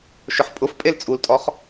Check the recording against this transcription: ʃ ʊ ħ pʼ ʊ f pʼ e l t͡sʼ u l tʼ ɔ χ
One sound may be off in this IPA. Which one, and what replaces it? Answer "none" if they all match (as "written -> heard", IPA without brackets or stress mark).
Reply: none